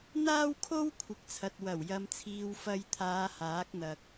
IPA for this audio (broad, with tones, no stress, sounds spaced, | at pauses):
n̪ aː˥ w kʰ o˥ w kʷʰ ɪ˨˥ k̚ t͡sʰ ɐ˨ t̚ w ɐ˨˩ w j ɐ˧ m t͡sʰ iː˧ w f ɐ˧ j t̪ʰ aː˨˧ h aː˨˥ k̚ n̪ ɐ˨ k̚